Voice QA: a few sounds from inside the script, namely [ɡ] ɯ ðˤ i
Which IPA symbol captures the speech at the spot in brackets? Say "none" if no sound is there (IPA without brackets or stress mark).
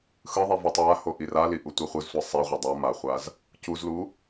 x